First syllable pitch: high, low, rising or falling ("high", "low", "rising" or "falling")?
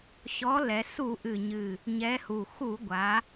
rising